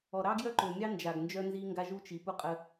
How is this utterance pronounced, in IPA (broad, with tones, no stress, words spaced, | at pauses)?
ɔ˨ ɾɑ˦ɡjœ˦ǃø˨mʲɑ˦ nd͡ʒa˨ɡnd͡ʒœ˦nzi˦ŋɡa˦ ʒu˦t͡ʃi˨pu˦qʼə˦